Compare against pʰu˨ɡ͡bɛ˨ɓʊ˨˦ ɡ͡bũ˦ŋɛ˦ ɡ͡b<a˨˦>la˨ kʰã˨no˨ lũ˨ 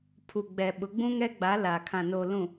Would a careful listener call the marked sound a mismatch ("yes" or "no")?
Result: no